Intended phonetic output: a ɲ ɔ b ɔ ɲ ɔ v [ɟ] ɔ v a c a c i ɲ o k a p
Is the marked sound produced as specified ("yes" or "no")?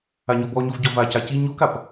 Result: yes